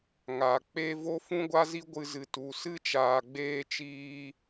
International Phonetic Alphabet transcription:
ŋ a˨ k͡p e˦ v o˦ f ũ˦ ɡʷ a˦ z i˦ ɡʷ ɨ˧ z ɨ˨ t u˨ s ɨ˦ t͡ʃ aː˨ ɡ͡b eː˧ t͡ʃ iː˧

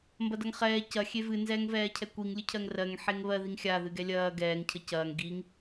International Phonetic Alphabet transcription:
m b ɐ d ɐ ŋ χ ɛː c ɐ xʲ e v ɨ n z ɛː ŋ v ɛː cʰ ɛ kʷ i ŋ lʲ ɨ cʰ ɜ ŋ r ɜ ŋ ħ e ŋ β ɜ ð i ŋ xʲ a ð ɨ ɡ ɛ lʲ ɐː ɡ ɛː ŋ cʰ ə c ɐː ŋ ɡ i ŋ

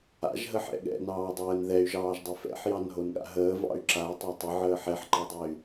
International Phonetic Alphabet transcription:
a̰ ʒ ɦ ə ħ ɛ̰ ɠ ɛ̰ n ɑː dˤ əː n ð ɛ y̯ ʒ ɑː ʒ dˤ ɛ f ɛ̰ ħ j ɑ n ɦ o n ɠ a̰ ɦ əː v ɑ̰ y̯ ǁ a i̯ tˤ ɑ tˤ ɘ ʕ əː ħ ɛ ħ ǃ ɑ dˤ ɛ y̯

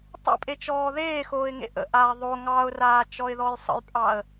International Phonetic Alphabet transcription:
tˤ ə̰ pʼ e t͡ʃ ɔː ð eː x oː ɪ̯ ŋ ḛ ʔ ə̰ ʔ aː ðˤ o ŋ ɑ ʊ̯ r aː t͡ʃ ɔ ɪ̯ ð ɔ j sˤ ə̰ j pʼ ɑ ə̯

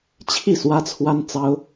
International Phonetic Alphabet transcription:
t͡ɕʰ i˥˨ s w ä˦ t͡sʰ w a˦ n t͡s ɑ˦ ʊ̯

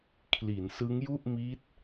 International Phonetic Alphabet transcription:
kʰ l i˩˦ n s ɯ˦˥ ŋ j u˥˩ ʔ m i˦˥ t̚

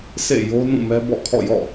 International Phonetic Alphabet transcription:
sʰ ḛ˦˨ j o˦ n ũ˦˨ m ɛ˦ b ɔ̰˦˨ kʰ ɔ̰˦˨ j ɔ̰˦˨

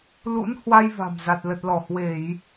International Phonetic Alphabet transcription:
l ṵ˧˥ n h w a˧ j v a̤˨˩ m z a˨˩ t̚ l ə˨˩ t̚ l ɔ˧˩ h w e˧˩˨ j

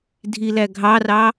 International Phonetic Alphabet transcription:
dʱ i l æ ɡʱ ɑ r ɑ

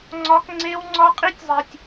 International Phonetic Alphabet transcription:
ŋ͡ǀ ɒ˦ k ŋ͡ǀ e˦ w ŋ͡ǀ ɒ˦ qʼ i˦ tʲ zˤ i˨ tʲ

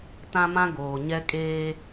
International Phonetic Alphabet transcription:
t ã˦ m ã˦ ɡ oː˨ ɲ ɛ˦ kʼ eː˦

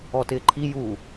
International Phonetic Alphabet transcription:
ɔ t ɪː ǃʰ i j u

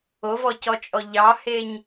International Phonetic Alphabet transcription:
o v ɔ c ɔ t͡ʃʼ ɔ ʎ ɑ h e ɲ

